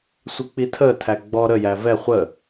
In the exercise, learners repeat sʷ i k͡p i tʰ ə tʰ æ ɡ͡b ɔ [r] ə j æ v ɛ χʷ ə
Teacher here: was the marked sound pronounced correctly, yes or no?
no